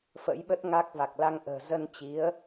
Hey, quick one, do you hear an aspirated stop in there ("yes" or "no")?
no